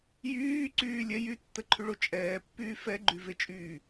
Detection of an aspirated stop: present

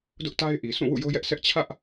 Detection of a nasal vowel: present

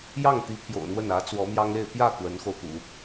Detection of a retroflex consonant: absent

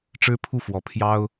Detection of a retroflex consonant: present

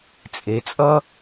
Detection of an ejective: present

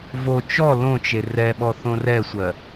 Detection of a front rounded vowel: absent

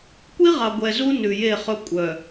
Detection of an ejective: present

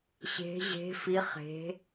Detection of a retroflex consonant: absent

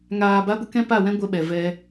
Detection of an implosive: present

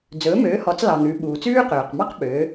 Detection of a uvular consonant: present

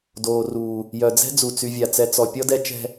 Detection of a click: absent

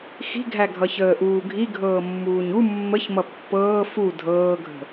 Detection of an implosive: absent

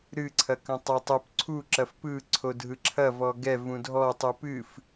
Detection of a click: present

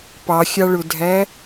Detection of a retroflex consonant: present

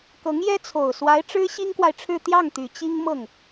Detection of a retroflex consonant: present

